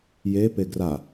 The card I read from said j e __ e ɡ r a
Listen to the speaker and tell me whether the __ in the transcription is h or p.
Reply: p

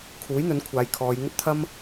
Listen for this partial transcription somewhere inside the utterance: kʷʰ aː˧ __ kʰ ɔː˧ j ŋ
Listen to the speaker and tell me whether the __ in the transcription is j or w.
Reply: j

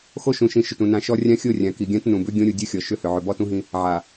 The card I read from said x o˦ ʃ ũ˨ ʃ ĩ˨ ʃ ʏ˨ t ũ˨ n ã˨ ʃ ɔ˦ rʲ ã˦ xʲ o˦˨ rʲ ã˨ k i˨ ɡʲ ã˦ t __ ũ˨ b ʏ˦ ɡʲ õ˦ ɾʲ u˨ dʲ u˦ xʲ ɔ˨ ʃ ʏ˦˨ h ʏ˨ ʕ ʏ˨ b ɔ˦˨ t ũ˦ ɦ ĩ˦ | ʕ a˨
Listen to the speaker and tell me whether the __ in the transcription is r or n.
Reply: n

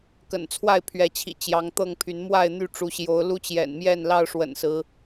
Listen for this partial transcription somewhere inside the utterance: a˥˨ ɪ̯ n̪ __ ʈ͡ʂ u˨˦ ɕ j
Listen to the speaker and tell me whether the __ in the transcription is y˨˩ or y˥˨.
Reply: y˥˨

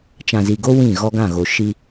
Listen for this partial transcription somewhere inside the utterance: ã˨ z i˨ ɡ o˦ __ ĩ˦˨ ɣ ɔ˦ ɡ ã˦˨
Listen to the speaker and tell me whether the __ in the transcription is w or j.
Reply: w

